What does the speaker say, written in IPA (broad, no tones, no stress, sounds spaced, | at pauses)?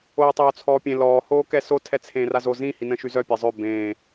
oː tˤ oː t͡sʰ ɔː pʲ ẽ l ɔː h oː k ɛ s o tʰ ɛ t͡sʰ ẽː r a z o z ĩ h i n ə̃ ʃ y z œ pʲ ɛ zˤ ø b ẽː